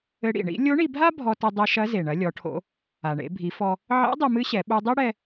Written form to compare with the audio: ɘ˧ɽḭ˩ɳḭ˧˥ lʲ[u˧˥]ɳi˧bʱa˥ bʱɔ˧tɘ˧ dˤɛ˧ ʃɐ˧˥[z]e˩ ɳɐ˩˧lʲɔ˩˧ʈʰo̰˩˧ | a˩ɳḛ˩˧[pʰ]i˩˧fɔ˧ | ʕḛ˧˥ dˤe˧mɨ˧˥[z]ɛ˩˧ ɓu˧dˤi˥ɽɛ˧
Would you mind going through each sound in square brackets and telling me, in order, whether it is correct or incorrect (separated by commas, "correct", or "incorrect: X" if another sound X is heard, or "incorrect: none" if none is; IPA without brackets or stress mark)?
incorrect: o˧˥, correct, incorrect: bʱ, incorrect: ɕ